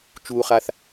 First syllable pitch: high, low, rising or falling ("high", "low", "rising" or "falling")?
low